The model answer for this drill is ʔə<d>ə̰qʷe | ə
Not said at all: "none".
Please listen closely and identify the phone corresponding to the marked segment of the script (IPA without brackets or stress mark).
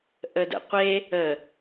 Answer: d